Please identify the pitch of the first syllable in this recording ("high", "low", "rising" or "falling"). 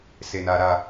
low